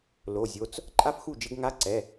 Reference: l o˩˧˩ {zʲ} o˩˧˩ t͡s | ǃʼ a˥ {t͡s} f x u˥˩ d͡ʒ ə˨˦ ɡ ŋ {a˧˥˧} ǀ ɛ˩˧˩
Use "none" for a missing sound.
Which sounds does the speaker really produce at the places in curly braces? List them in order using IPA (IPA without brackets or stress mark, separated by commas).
zʲ, none, a˧˥˧